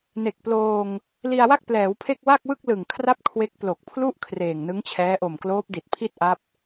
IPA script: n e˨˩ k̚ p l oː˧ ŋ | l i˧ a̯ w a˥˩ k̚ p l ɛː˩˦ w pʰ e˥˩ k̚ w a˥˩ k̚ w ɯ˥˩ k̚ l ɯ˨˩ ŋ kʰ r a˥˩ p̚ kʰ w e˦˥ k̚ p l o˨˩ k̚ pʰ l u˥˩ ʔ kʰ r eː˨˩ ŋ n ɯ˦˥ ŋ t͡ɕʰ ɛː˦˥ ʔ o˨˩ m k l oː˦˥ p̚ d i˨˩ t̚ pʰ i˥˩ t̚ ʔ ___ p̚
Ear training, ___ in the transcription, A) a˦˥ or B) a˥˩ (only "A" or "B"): A